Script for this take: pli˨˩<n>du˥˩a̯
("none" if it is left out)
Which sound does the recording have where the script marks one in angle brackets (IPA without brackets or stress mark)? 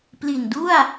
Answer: n